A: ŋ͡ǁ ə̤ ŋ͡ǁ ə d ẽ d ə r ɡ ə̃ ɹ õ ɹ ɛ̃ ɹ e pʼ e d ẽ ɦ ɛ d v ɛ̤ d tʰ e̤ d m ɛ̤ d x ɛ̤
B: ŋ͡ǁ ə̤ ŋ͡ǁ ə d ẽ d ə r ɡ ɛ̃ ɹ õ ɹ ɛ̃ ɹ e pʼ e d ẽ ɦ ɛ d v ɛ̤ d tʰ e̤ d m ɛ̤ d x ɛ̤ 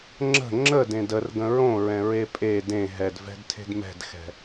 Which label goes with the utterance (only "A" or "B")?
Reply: A